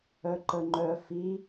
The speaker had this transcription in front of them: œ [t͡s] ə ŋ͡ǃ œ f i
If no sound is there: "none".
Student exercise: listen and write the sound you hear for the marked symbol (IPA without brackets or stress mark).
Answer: ǃ